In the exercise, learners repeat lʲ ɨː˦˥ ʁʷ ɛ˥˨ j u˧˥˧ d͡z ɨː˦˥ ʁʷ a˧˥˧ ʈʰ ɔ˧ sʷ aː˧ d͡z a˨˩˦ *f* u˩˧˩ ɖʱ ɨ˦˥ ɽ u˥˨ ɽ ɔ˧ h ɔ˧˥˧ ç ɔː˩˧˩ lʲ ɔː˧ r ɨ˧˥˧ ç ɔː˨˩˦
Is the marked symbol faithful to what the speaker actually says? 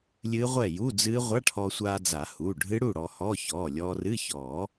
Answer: no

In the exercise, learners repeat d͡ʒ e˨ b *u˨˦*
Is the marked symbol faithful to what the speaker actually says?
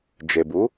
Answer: yes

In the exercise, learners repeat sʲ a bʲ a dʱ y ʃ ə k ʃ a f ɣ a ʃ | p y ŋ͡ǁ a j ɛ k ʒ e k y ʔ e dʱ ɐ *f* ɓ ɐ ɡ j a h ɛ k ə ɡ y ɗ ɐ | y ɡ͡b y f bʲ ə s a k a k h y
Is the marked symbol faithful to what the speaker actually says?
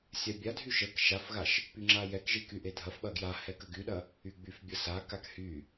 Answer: yes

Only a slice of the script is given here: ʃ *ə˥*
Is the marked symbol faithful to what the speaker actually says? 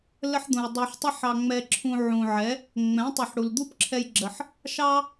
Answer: no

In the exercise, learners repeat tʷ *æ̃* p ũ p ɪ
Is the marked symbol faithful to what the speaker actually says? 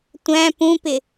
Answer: yes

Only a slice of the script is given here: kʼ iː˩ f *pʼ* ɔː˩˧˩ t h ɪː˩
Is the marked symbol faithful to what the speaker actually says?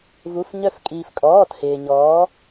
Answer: no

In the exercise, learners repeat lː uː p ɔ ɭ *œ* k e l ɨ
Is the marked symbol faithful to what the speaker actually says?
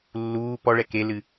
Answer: no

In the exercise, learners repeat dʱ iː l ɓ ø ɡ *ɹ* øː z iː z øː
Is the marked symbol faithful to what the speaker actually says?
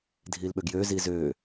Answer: no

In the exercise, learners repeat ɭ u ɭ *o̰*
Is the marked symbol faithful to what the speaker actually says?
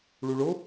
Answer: no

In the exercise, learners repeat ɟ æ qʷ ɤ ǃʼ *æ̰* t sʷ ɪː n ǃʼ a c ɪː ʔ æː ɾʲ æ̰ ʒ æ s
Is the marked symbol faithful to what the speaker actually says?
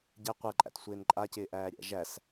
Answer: yes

